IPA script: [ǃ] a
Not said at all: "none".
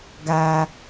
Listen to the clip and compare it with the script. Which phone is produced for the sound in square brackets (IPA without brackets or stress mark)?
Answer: ɡ